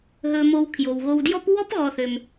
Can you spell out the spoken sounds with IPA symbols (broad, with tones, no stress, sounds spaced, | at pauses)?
ɦ ɵ˨ m o˨ w kʰ j o˩ w ɣ o˨ w d j ɔ˥ p w ɔ˥ p ɣ ɔ˨ θ ø˩ m